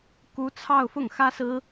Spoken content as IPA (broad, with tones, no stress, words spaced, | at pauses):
ku˧˥ t͡sʰɑ˥˧ʊ̯fʊ˥˩ŋ xä˥sɹ̩˥